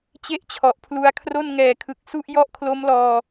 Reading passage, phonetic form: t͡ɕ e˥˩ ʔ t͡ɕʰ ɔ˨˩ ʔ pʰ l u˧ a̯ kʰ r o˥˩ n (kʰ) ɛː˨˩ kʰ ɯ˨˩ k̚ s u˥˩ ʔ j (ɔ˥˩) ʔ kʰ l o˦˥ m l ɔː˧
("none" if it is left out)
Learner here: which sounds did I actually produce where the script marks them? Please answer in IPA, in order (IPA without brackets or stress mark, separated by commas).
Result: ŋ, ɔ˥˩